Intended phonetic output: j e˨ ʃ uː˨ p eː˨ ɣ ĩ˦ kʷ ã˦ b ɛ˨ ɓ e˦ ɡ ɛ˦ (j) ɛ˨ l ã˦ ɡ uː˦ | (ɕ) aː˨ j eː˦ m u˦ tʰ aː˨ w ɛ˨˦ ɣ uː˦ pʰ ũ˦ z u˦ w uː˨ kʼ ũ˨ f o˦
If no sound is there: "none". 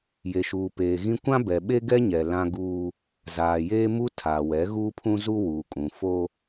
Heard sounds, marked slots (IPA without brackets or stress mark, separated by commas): ɲ, z